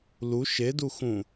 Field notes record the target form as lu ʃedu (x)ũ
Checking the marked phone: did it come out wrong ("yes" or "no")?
no